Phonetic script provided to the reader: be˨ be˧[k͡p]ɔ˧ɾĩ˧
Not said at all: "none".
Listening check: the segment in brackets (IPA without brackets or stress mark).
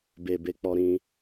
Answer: k͡p